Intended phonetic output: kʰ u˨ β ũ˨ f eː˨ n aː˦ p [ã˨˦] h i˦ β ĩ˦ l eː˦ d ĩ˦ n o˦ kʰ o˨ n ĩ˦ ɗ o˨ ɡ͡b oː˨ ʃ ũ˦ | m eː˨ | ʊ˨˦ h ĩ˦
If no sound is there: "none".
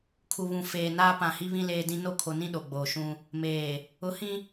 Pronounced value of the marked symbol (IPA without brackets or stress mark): ã˨